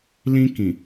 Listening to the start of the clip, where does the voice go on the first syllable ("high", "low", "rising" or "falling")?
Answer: high